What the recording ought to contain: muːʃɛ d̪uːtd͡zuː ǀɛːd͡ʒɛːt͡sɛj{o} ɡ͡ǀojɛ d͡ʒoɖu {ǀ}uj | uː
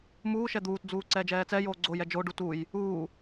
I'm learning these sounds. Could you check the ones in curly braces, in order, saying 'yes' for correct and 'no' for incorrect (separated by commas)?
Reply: no, no